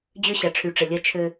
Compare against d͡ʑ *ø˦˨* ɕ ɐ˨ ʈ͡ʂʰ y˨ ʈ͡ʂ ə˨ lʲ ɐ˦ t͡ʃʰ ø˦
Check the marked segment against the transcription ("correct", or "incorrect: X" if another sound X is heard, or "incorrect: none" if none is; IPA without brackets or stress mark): incorrect: ø˦